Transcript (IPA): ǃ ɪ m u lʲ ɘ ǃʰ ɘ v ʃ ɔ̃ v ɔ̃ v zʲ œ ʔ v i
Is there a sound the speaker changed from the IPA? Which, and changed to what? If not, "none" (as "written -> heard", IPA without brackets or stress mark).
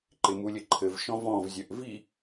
none